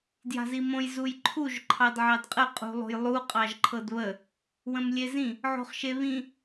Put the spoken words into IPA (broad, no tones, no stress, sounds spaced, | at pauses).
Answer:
d j a̤ z i m õ j z u j ǃʰ u ʒ ǃʰ ɑ d ʕ ɑ d qʼ ə qʼ ṳ lˠ o̤ j lˠ u qʼ ɑ ʒ ǃʰ ɤ d β ə | w ə̃ m lʲ e z ĩ | ʕ o̤ χ ʃ e β ĩ